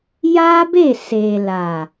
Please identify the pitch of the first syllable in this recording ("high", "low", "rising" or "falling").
high